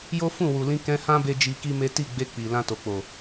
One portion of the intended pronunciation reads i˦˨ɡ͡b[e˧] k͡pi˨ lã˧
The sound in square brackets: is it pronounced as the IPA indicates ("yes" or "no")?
yes